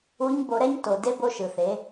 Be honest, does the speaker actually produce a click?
no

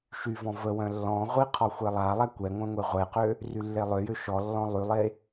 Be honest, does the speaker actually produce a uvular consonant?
yes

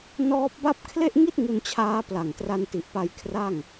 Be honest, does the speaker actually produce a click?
no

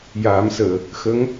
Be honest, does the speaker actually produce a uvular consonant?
no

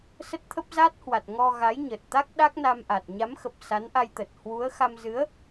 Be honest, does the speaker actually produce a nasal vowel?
no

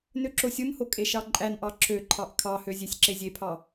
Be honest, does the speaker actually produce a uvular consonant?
no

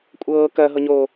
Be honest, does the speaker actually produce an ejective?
yes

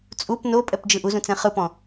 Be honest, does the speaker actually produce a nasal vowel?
yes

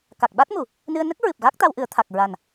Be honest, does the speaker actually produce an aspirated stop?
yes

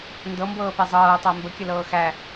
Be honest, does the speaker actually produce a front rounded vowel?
no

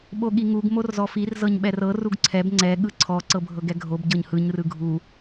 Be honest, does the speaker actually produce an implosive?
yes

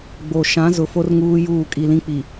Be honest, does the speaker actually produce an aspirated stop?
no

